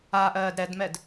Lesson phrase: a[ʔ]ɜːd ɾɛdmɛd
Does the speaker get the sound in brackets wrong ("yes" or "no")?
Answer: no